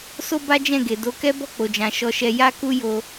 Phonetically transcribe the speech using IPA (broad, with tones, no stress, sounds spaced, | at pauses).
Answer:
s o˦ b a˦ d͡ʒ ɛ̃˦˨ ɡ e˨ d o˨˦ k ɛ˦ b ɔ˦˨ k͡p o˨ d͡ʒ ã˨ ʃ ɔ˧ ʃ ɛ˧ j a˦ k u˦ j o˧